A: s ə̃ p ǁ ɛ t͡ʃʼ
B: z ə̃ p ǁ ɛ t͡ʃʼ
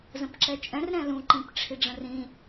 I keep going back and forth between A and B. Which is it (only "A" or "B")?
B